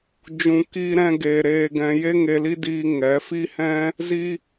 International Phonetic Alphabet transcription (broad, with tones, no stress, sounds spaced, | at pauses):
d͡ʒ ũ˨ k iː˧ ɾ ɛ̃˧ ɡ eː˧ ɾ eː˦ ɡ ɛ̃˦ j e˦ ŋ e˧ l i˦ d iː˧ ŋ ɛ˨˦ f i˦ h ɛ̃˦ | z i˦